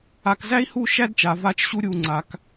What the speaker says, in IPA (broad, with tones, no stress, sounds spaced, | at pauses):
a˧ k z æ˥ i̯ h u˥˧ ʃ æ˥ d t͡ʃ a˩˧ v a˧ t͡ʃ ɕ u˧ ɾʲ u˧˩ ŋ͡ǀ a˧ k